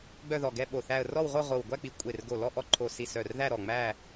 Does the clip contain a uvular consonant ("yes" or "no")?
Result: yes